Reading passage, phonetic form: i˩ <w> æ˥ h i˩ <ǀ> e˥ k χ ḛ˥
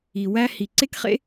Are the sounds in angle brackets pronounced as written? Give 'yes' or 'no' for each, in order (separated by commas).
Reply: yes, yes